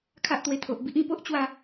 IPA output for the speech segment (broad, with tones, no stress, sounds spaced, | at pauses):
kʰ a˦ ʔ t̪ w e˧ t̪ʰ o˨ ʔ b i˦ ʔ ĩ˧ p o˦ ʔ t͡ɕ w a˥˧